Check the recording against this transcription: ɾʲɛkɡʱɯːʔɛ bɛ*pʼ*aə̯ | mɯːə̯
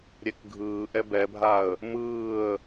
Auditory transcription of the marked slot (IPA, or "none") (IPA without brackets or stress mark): bʱ